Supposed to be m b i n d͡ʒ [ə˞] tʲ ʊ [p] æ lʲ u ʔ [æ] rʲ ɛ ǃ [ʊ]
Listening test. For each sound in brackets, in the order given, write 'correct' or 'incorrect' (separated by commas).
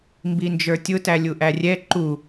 correct, incorrect, correct, incorrect